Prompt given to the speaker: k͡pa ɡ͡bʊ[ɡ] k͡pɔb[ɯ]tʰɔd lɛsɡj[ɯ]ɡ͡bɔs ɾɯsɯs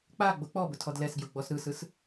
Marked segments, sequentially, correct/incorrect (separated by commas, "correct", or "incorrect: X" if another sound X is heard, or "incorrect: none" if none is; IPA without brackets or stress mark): incorrect: none, incorrect: ʊ, incorrect: ʊ